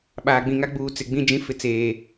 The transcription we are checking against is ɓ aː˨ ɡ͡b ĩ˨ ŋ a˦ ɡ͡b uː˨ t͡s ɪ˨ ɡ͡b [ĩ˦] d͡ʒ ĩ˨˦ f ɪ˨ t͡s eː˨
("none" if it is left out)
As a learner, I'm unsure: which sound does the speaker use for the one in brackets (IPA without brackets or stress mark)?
ĩ˦